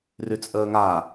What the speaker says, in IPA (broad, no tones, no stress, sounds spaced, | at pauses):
r y t͡sʼ əː ŋ a